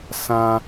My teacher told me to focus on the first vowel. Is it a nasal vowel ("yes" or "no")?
yes